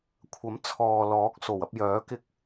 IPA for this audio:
kʷʰ ɐ˨˥ m t͡sʰ ɔː˨ l ɔː˨˥ k̚ s o˨˩ w ɐ˧ p̚ j œː˨˥ k ɪ˧ k̚

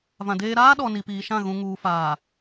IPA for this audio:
v ã˨ d eː˦ ɾ aː˦ ɗ ɔ˨ n i˨ p iː˨ ʃ ã˦˨ ɣ ũ˨ ŋ uː˨ f aː˨

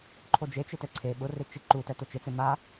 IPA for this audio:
ǃʰ o d͡ʒ e t͡ʃ ɪ t ɛ ǀʰ e ɓ ʊ r ɪ t͡ʃ i ǃ u t ɛ t ʊ t͡ʃ ɪ t͡s e m a

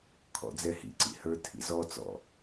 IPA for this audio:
kʰ ɔ̰ d͡z ɛ h ḭ ǀ ḭ h ə˞ tʰ ḭ z ɔ t͡s ɔ̰

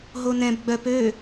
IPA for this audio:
ɦ o n ɛ̃ b ɡ͡b œ p ø

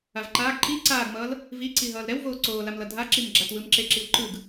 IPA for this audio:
a v ǃ aː ɡ ǃ i ǀ aː ɡ m ʌː l | v i ǀ i ɦ ʌː l ɾ ɛ w v oː ǀ oː l a m l ʌ dʱ a ǁ i m ɡ͡ǁ a t w ɯ m ǁ e ǁ i w ǃ ɯ ɡ

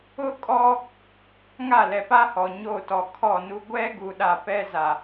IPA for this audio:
ʊ˦ kʼ ɔ˦ | ŋ a˦˨ l ɛ˨ p a˦ h ɔ˨ ɲ o˦˨ t ɔ˨ kʰ ɔ˦˨ n u˦ ɡʷ ɛ˦ ɡ u˨ ɗ a˨ p ɛ˦ z a˨

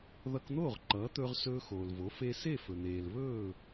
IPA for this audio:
ð ʌ˧ k n̪ oː˥˩ ʁ ǃ ʌː˩˥ t̪ ɵː˧ ʁ s ɵː˧ x oː˩ l v o˩˥ f e˧ s e˥˩ f ɵ˩ n̪ eː˩ l β ɵː˥˩

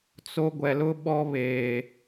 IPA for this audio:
t͡s o˦ ɡʷ ɛ˨ l ʊ˦ ɓ ɔ˦ β eː˨

